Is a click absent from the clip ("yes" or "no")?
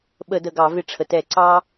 no